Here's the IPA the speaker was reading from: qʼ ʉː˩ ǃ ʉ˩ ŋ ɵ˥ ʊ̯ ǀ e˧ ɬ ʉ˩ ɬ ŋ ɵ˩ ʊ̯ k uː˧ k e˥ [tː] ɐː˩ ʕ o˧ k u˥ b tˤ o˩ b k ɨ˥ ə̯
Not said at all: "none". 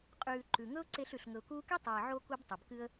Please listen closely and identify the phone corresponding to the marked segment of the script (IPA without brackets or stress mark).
tˤ